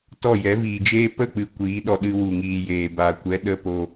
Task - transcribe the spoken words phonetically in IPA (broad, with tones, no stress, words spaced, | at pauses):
tɔ˦˨jɛ˨˦ viː˨d͡ʒeː˦ pə˦˨k͡pɨ˨ kʷiː˨˦ɗɔ˧ ɗɨ˧wu˨ŋiː˨ jeː˨ba˨ kʷɛ˨˦ɗə˧ po˧